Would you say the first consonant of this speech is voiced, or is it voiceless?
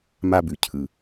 voiced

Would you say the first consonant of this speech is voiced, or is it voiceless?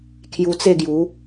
voiceless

